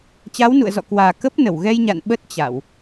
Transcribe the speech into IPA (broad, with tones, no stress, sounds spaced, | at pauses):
t͡ɕ a˨˦ w n ṵ˧˨ ə̯ z ɔ̰˧˨ k w aː˨˩ k ə˦˥ p̚ n ə˧˩ w ɣ ɛ˧ j ɲ a̰˧˨ n ɓ ə˦˥ t̚ t͡ɕ a˧˩˨ w